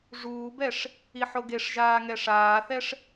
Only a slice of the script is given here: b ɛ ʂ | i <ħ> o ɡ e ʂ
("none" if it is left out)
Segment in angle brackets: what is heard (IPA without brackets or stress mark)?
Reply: ħ